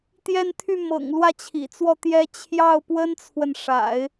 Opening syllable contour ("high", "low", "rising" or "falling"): falling